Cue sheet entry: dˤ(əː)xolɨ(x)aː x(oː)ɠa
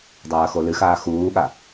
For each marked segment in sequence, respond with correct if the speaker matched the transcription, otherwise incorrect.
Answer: incorrect, correct, incorrect

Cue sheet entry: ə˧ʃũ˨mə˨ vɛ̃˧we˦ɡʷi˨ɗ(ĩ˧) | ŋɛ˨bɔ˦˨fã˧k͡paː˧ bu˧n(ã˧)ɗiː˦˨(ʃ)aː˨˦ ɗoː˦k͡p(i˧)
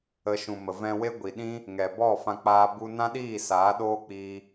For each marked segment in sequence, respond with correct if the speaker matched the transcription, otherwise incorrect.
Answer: incorrect, incorrect, incorrect, incorrect

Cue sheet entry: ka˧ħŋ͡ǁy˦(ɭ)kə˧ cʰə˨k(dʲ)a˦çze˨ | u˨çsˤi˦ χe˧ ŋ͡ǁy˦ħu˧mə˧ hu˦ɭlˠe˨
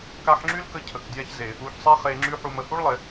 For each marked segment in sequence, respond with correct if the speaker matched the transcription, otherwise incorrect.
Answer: incorrect, correct

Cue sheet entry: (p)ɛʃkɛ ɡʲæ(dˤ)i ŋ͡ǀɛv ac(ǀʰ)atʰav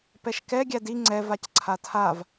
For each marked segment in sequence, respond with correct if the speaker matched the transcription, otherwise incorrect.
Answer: correct, incorrect, correct

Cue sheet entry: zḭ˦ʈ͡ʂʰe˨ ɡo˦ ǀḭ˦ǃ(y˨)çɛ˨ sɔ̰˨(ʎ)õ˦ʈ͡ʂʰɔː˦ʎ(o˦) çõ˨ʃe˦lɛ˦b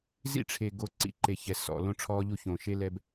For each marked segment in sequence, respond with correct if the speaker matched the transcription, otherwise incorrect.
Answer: incorrect, incorrect, incorrect

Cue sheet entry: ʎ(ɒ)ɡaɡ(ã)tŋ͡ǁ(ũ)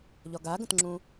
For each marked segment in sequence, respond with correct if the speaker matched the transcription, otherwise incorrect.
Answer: correct, incorrect, correct

